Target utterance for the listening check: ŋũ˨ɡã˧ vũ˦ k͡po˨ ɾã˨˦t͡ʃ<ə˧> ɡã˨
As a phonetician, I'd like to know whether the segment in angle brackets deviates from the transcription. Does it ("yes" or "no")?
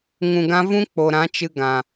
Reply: yes